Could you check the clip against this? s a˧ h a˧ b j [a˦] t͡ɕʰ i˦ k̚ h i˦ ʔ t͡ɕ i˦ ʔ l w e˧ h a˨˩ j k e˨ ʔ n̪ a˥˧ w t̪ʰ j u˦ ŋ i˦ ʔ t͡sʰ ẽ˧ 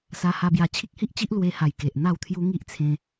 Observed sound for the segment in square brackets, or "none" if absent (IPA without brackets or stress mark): a˧